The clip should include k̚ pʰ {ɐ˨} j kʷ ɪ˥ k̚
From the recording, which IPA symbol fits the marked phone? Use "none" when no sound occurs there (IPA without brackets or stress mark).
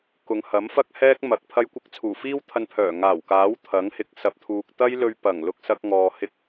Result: ɐ˥